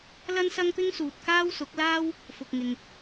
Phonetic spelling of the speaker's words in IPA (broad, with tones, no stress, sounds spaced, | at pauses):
l ɐ˥ n s ɐ˥ ŋ p ɪ˥ ŋ s uː˨ t̚ k aː˥ w s ʊ˨˥ k̚ l aː˥ w | f ʊ˨ k̚ ŋ ɪ˨ ŋ